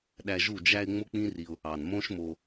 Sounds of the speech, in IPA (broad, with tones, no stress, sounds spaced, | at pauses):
ɗ æ˧ ʒ u˦˨ d͡ʒ æ˧ ɪ̯ ŋ͡m o˦ k͡p ĩ˦ r i˧ ʊ̯ | ɑ˨ n m õ˦ ʃ m o˧